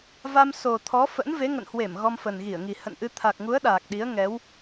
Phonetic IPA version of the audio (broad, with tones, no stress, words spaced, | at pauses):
va˧m so˨˩ t̪ʰɔ˨˦fə̰˧˥n ve˨˦ŋə̰˧˨nhwe˧˩m ɣɔ˧mfə˨˩nɣi˧˩ə̯ŋi˨˩ hə̰˧˨nʔɨ˧ t̪ʰa˨˩k̚ŋu˨˦ə̯ ɗaː˨˩k̚ɗi˨˦ə̯ ŋɛ˨˦w